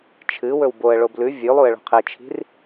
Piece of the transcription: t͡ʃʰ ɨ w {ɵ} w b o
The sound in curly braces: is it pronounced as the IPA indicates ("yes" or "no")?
yes